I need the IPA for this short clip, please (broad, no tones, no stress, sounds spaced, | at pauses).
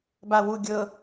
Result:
b a w u ɡʲ ɤ